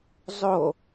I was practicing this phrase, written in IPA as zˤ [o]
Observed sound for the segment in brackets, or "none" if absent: o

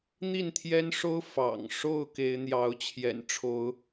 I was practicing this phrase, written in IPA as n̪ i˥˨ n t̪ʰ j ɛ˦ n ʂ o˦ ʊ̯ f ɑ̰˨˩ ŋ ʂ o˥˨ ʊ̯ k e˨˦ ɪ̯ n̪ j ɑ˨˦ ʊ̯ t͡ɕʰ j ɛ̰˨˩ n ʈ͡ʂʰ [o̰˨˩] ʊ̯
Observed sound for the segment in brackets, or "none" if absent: o˨˦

